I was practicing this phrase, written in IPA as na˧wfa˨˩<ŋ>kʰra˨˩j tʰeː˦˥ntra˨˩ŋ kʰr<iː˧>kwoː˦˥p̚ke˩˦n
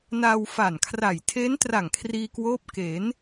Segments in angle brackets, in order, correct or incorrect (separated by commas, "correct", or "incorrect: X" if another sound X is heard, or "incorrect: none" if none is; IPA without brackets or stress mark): incorrect: n, correct